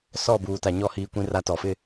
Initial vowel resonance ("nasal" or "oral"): oral